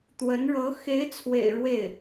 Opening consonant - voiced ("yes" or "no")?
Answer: no